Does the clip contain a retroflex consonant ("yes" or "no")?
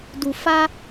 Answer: no